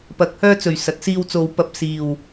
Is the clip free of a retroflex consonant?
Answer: yes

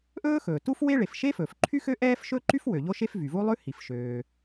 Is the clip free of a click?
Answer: no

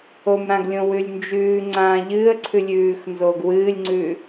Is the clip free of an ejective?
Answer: yes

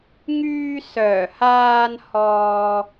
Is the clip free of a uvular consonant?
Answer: yes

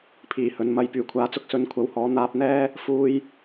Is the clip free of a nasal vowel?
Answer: yes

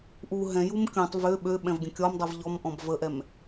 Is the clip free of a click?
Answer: yes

